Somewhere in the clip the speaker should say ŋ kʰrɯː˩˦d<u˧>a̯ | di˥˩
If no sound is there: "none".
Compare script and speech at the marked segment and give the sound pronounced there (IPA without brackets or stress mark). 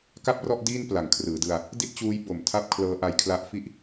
ɯ˧